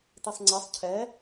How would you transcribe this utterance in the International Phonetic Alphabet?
t i sˤ ŋ͡ǀ ɛ sˤ cʰ ɛ

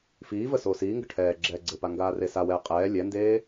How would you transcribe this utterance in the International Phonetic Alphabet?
f iː v ə s oː s iː ŋ ɡ ə ʈʰ ɛː ɡ͡ǁ ɛː ɡ͡ǀ ɘ p a ŋ ɡ aː r e s a w ɛː qʼ ɛː lʲ ɛ n d eː

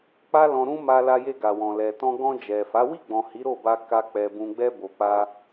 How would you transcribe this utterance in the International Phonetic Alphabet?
k͡p a˦ l ɔ̃˧ ɾ ũ˦ m a˧ l a˧ j e˧ ɡ a˨ w ɔ̃˨ l ɛ˨ t ɔ̃˧ ɡ ɔ̃˧ d͡ʒ ɛ˨ f a˨˦ w i˦˨ ɡ͡b ɔ̃˨ h i˨˦ ɾ o˦˨ b a˧ k a˧ k͡p ɛ˨ b ũ˨ ɡ͡b ɛ˧ b o˨ k͡p a˧

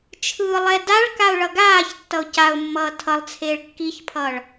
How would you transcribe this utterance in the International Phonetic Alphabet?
t͡ʃʰ ɯː lˠ ɛ d a ɭ k a ʊ̯ ɭ ʌ ɡ aː ç tː ʌ ʊ̯ c a ʊ̯ mː ʌː tʰ ʌ lˠ t͡sʰ eː ɭ kː i ç pʰ ʌː ɭ

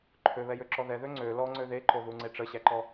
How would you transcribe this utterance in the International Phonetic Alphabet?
ǃʰ ø β ɛ j ø ǁ ɔ ð ɛ ð ø ŋ͡ǀ ø l ɔ ŋ͡ǀ ø ð e ǃ o ð u ŋ͡ǀ e ʈ͡ʂ ə ɕ æ ǃ ɔ

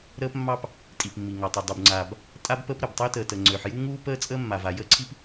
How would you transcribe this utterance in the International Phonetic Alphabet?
ɾ əː˥ p mː ɑ˥ p | tʼ i˩ p mː i˩ ŋ ɑ˩ tˤ ø˩ dˤ u˩ b ŋ͡ǀ aː˩ b | tʼ a˥ b p ə˥ p ɾ ə˩ b tˤ ø˥ t əː˩ t ə˩ ŋ͡ǀ øː˩ ħ j u˥ ŋ uː˥ p əː˥ t͡sʼ əː˥ mː a˩ v a˩ j əː˥ ǀʰ i˥ p

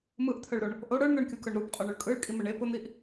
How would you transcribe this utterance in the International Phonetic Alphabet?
m ɯ ʔ t̪ʰ œ ɭ ɾ o ɳ | ʔ o ɽ ə˞ ɳ n̪ ə˞ ɳ kʲ u k œ ɳ ɾ u p qʼ œ ɳ ʊ ɭ kʼ ɯ ɭ kʼ i m ə ɳ e p ʊ n̪ i ʔ

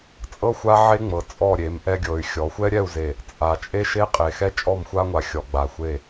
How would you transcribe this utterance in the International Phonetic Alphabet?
t͡sʼ ɤ˦ xʷ a˦ ʕ e˦ ŋ͡m ɤ˨ t͡sʼ ɔ˦˨ ɾʲ e˨˦ m ʔ ɛ˦ ɡʲ ɤ˨ y̯ xʲ ɔ˨˦ xʷ ɛ˦ ɾʲ ɛ˦˨ u̯ z e˨ | t͡sʼ a˨ t͡ʃʼ e˦ ʃ e˦ qʼ e˨ x ɛ˦ t͡ʃʼ ɔ˦˨ m xʷ a˦ ŋʷ a˨ xʲ ɔ˨ ɡ͡b a˨ xʷ e˦˨

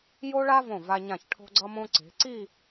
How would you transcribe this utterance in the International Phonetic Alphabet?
j o˥ ɭ a˥ v õ˧˩ v a˧ ɲ ã˧˩ ç ʈʰ o̤˥ ɡ͡ǀ ʌ˥ m õ˥ ǀ e̤˩˧ ǀ i˥˧

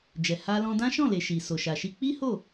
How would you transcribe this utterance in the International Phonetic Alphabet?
d͡ʒ ɛ˨ h a˧ l ɔ̃˧ d ã˦ ʃ ɔ̃˦˨ l e˨ ʃ i˨ s o˨ ʃ a˨ ʃ i˧ k͡p i˦ h o˦˨

